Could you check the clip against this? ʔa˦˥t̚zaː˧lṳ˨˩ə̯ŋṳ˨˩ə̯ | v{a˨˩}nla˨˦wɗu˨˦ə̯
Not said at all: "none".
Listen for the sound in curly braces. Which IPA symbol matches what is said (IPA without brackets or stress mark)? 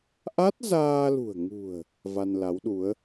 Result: a˧